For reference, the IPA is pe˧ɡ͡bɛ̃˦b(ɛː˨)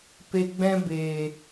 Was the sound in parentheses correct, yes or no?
no